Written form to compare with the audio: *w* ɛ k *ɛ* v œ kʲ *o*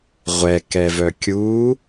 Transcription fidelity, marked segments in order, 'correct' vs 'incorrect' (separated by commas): incorrect, correct, incorrect